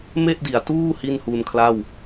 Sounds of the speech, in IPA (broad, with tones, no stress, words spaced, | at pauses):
me˥˩ʔdi˩˦a̯tuː˥˩ hi˥˩nhuː˧nkʰla˥˩w